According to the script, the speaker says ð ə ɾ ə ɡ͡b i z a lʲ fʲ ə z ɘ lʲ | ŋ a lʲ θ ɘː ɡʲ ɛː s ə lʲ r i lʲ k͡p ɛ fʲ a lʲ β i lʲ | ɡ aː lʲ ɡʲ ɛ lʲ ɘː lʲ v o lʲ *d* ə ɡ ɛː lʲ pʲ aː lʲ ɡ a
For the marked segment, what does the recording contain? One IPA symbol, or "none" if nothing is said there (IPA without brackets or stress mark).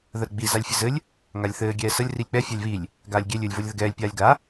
ð